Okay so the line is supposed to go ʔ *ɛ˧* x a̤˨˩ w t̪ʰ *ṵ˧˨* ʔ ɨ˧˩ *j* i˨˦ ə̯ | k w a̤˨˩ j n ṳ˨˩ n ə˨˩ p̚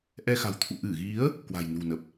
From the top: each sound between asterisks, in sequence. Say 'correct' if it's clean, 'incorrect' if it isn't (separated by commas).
correct, correct, incorrect